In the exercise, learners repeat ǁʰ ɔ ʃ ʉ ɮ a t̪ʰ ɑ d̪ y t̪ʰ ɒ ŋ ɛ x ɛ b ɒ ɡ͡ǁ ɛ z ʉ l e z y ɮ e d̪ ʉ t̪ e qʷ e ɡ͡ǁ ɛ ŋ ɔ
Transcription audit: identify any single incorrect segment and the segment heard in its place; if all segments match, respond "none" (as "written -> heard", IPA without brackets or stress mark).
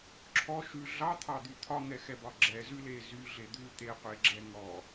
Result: a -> ɑ